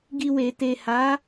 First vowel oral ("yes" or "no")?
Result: yes